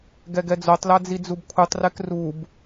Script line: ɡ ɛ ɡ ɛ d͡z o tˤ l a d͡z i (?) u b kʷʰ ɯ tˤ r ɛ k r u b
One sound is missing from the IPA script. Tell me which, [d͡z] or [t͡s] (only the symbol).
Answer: d͡z